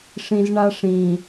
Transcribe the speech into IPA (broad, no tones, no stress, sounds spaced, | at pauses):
ʂ ĩ z ɳ a ʂ ĩ